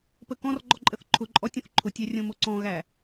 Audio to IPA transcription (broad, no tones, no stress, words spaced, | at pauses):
pəkɔ̃rɡ͡ǃɔ ǃʼəθǃʰʊǃʼɔ tʲõθǃʰʊtʲæ rʲõmoǀɔ̃ɣæ